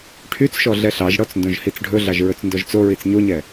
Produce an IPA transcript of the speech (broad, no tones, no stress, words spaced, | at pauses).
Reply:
ʈʰyt͡sʃɔ ɮɛɬɑʒɽɔt͡s ndõʒhit͡sɖʱɵɮɑʒ ɹɵt͡sndɔʒt͡soɹit͡s ɲoɲɛ